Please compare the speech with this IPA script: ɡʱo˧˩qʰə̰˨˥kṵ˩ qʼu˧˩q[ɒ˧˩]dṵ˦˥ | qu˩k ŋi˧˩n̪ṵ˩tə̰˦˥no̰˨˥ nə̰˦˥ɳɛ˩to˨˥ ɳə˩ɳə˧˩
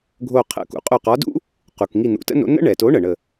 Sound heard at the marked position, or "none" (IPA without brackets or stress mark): ɒ˨˥